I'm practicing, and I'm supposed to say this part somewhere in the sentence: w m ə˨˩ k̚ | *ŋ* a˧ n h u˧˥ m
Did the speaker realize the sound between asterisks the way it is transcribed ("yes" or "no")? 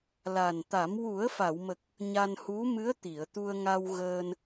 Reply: no